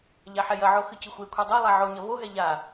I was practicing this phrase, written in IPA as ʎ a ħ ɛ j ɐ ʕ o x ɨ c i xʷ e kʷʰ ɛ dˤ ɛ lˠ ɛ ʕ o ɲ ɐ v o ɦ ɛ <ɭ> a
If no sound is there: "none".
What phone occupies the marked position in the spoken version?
ʎ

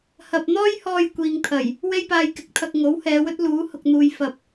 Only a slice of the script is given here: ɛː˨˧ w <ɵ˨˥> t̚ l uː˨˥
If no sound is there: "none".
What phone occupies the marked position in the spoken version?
ɵ˥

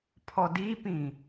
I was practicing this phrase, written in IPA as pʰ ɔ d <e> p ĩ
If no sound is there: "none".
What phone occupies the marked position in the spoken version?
i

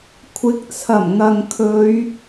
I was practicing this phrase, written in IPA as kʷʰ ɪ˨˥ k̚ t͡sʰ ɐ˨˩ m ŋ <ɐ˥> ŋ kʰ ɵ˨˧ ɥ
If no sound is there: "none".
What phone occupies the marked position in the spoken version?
ɐ˨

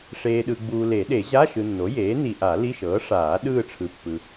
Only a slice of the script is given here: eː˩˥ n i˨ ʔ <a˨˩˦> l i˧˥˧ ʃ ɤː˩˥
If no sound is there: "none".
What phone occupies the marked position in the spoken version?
a˨˩˦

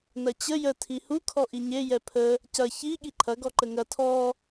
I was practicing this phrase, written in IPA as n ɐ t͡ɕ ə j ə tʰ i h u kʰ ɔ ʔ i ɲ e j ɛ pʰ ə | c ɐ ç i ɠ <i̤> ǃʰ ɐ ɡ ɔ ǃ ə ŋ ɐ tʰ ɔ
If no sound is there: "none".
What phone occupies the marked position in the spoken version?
i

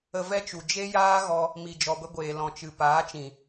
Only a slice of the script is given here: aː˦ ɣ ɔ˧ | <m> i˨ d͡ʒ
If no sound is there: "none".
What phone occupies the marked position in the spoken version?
m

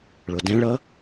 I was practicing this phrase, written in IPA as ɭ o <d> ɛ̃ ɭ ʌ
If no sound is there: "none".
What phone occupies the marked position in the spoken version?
d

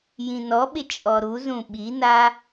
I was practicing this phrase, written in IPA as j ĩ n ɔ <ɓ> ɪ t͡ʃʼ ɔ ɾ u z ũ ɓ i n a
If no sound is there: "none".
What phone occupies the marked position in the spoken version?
ɓ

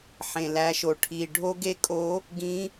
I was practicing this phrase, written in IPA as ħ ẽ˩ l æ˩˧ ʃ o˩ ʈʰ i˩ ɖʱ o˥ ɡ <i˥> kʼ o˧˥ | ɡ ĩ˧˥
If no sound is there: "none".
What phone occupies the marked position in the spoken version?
e˥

